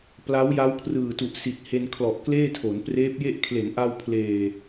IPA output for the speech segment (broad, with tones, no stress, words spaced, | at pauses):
pla˦˥wja˦˥wkʰrɯː˨˩tu˨˩ʔ si˨˩t̚he˧nkʰlɔ˨˩ʔ kleː˥˩tʰo˩˦n preː˦˥p̚je˥˩ʔ kʰle˩˦nʔa˧wpʰleː˨˩